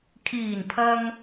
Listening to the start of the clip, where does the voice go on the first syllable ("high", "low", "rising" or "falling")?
low